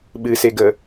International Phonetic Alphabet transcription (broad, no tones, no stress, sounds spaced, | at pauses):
ɓ ɨ s e ɡ ə